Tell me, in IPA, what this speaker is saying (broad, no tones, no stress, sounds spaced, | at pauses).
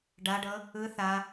ɖ a ɖ ɤ | ɯ θ a